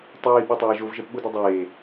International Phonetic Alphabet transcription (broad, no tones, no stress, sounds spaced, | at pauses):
tˤ iː ɓ o tˤ aː ʒ o v ʒ ɛ p ɓ u d o dˤ eː